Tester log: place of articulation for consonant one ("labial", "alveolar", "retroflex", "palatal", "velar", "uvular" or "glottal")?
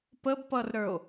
labial